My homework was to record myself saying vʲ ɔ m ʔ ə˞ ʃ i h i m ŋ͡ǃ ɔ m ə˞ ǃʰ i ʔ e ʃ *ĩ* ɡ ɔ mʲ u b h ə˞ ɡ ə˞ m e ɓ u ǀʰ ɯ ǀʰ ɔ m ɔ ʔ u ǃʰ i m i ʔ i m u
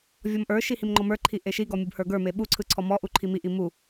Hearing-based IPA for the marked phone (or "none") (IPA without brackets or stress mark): i